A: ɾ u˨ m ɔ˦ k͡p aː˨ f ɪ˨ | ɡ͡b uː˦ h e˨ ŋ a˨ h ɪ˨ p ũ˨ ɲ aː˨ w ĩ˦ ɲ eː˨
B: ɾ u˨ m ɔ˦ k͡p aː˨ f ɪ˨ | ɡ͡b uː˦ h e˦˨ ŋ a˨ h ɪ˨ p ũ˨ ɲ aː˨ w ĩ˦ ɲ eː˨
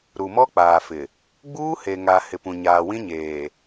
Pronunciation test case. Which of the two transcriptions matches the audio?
A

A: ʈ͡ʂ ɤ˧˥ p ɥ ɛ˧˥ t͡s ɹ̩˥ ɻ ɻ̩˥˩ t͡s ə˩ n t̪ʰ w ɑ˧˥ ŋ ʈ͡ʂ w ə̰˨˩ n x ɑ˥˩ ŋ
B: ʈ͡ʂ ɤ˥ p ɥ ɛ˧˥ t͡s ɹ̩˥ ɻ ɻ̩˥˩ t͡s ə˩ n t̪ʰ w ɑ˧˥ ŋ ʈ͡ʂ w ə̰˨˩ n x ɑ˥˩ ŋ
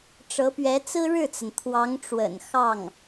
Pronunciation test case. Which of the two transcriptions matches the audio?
A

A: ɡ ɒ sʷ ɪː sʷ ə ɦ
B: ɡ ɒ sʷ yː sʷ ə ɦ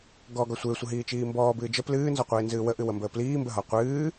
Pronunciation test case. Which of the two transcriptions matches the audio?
A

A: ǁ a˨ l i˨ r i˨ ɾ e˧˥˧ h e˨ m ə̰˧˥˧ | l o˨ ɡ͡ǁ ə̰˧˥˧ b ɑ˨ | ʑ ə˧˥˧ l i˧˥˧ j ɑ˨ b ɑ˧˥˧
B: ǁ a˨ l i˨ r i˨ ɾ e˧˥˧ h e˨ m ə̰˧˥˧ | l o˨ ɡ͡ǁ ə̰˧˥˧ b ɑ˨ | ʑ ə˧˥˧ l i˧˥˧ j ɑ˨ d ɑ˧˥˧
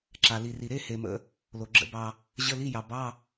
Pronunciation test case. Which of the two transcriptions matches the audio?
A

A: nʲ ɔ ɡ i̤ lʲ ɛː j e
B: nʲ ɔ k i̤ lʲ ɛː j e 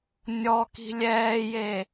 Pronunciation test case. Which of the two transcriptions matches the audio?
B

